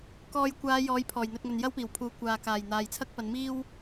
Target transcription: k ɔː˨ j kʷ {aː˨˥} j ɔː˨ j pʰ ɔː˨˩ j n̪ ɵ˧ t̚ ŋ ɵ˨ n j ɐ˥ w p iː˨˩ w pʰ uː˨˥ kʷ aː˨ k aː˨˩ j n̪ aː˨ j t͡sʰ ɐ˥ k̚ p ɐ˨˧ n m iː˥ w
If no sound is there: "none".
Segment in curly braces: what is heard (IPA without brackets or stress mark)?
aː˨˧